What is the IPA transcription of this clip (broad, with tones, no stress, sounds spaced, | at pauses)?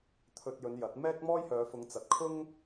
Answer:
t̪ʰ ɵ˧ t̚ j ɵ˨˧ n j ɐ˨˥ t̚ m ɛː˥ k̚ m ɔː˥ j h œː˨˧ f ʊ˨˧ ŋ t͡s ɐ˨˥ t̚ kʰ ʊ˥ ŋ